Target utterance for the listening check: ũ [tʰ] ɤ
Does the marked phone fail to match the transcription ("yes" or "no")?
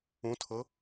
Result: no